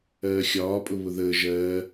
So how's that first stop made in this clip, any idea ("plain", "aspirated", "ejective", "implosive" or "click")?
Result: ejective